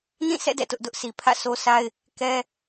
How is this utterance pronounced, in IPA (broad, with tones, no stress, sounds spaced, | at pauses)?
n ĩ˦˨ s ɛ̰˦˨ d ɛ̰˦˨ t ʊ˦ ʔ d ʊ˦ ʔ s i˨ pʰ ä̰˦˨ s o˦ sʰ a˦ ɪ̯ | k ɛ˦